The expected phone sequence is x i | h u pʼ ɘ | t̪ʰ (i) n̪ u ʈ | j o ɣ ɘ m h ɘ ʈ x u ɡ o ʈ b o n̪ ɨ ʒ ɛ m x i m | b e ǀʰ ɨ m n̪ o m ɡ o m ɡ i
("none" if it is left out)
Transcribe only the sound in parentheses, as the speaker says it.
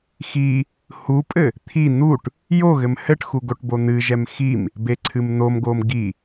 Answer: i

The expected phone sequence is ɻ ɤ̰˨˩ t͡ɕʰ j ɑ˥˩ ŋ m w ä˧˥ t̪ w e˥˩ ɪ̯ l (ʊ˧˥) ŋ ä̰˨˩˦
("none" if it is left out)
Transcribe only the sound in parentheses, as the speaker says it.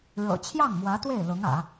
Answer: ʊ˧˥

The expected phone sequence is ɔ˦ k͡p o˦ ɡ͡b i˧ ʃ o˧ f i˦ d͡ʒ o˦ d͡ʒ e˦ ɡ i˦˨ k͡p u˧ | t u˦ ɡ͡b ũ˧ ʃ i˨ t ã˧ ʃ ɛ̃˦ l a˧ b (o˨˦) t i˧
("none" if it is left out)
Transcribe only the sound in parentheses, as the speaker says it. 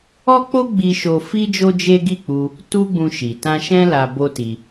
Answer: o˦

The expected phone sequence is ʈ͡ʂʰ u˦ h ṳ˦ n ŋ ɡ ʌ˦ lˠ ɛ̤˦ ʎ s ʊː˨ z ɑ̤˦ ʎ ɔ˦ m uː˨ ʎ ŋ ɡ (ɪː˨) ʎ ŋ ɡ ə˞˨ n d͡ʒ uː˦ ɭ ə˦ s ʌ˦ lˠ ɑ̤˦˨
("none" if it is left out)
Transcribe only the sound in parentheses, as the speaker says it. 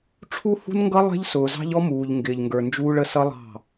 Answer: ɪː˨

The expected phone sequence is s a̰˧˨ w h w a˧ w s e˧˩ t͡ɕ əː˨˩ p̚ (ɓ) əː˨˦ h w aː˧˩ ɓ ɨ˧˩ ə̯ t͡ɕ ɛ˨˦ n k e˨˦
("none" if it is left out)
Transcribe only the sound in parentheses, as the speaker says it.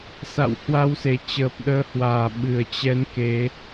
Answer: ɗ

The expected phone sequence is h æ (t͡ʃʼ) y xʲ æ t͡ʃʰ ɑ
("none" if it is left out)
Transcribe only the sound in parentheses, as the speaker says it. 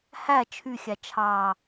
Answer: t͡ʃʰ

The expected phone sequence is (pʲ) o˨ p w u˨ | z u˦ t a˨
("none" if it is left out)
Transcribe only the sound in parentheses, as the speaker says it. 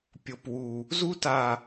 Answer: pʲ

